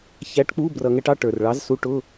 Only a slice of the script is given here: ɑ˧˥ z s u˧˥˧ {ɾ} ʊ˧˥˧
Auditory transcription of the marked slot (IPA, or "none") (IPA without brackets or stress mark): ʈ